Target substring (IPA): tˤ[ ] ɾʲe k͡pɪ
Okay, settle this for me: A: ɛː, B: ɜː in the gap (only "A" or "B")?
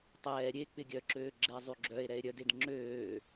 A